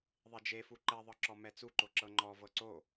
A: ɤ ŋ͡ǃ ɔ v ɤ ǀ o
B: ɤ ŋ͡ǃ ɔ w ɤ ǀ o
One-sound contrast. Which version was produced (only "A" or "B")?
A